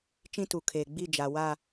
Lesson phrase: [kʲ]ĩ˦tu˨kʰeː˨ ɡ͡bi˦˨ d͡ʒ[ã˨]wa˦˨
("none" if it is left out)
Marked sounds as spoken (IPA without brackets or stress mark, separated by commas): t͡ʃ, a˨